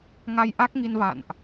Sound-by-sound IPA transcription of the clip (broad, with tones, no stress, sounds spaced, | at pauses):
ŋ a˧ j ʔ a˦˥ k̚ ŋ i˧ n v a̰˧˨ n ʔ